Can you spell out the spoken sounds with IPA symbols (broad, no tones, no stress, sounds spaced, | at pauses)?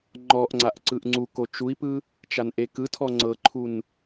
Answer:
ŋ͡ǃ ɔ ʔ ŋ͡ǀ a ʔ ǀ ɯ ʔ ŋ͡ǀ u k o t͡ʃ u i̯ p ɯ | t͡ʃ a n ʔ e k ɯ tʰ ɔ ŋ͡ǀ ɤ ǃʰ u n